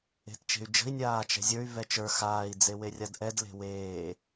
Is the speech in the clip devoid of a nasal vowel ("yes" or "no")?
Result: yes